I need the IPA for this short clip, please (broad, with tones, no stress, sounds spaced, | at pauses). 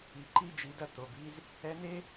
i˩ ǃ i˧ d͡ʒ i˩˧ d ɐ˧ t̪ o˩ b i˧ z | ɛ˧˥ n e˥